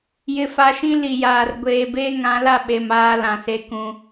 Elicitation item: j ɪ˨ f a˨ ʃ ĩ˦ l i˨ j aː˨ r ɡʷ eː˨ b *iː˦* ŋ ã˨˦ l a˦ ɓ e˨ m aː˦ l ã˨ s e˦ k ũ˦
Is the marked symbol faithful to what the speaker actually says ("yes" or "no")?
no